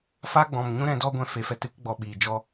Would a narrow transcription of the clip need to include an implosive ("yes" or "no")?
yes